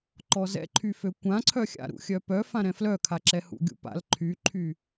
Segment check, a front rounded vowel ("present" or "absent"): present